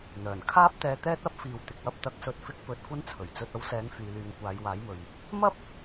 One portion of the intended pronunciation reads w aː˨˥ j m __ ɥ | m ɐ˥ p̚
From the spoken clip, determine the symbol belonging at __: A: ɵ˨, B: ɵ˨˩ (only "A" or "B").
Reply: A